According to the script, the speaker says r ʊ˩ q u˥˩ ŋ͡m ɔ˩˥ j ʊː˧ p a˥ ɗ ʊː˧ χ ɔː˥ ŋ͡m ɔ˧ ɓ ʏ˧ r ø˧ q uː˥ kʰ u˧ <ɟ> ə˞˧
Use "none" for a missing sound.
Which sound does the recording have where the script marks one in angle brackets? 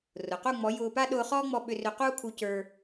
c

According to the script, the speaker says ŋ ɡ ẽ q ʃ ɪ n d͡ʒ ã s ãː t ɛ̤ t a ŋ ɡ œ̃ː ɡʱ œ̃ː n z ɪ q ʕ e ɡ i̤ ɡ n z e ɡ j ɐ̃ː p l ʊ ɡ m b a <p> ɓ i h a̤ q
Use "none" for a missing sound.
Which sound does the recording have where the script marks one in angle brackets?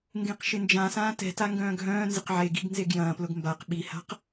q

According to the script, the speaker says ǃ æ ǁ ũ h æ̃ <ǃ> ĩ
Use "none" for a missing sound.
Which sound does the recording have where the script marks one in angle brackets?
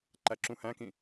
k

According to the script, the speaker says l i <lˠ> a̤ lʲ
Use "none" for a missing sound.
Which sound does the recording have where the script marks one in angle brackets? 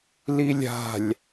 lʲ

